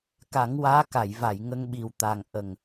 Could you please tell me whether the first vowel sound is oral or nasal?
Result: oral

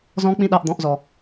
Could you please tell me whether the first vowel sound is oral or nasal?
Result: nasal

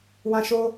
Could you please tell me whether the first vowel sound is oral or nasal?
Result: nasal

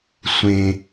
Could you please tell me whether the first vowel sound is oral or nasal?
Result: nasal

